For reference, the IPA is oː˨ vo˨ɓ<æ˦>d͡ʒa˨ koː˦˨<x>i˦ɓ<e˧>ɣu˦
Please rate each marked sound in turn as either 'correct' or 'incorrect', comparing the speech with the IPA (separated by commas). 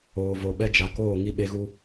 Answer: incorrect, incorrect, incorrect